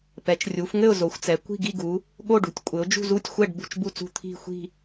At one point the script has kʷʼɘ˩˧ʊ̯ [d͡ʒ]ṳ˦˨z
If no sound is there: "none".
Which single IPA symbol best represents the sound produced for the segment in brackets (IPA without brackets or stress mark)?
d͡ʒ